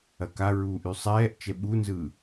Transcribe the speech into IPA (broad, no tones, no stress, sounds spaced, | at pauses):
ɐ k a ɹ uː ʔ y sˤ ɛː ʔ t͡ʃ ɛ ɓ u n z ɯː